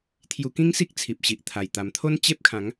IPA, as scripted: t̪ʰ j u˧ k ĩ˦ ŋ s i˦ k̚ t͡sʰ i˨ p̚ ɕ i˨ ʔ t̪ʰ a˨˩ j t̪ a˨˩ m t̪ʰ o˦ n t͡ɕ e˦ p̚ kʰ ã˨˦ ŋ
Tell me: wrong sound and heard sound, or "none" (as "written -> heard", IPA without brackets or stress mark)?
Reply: none